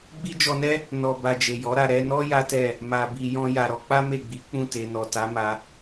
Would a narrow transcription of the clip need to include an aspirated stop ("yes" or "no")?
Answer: no